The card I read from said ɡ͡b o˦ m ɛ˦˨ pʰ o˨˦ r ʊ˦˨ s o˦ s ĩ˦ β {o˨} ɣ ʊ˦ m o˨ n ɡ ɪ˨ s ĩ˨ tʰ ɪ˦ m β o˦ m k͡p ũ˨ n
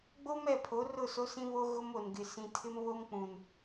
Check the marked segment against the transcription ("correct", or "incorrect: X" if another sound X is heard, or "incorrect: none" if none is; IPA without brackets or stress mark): incorrect: o˦